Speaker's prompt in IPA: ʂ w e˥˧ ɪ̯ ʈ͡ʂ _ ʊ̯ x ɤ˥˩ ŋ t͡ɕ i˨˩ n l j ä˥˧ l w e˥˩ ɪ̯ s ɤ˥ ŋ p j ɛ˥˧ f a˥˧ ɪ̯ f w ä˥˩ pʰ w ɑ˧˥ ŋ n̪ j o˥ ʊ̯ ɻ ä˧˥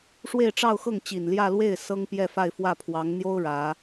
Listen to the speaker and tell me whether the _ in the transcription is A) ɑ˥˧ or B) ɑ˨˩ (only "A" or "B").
A